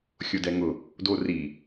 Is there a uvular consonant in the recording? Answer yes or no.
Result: no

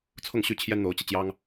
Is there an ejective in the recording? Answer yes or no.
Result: no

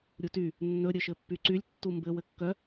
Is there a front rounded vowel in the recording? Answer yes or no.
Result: yes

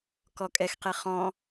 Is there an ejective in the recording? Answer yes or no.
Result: yes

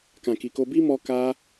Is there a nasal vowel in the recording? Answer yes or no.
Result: yes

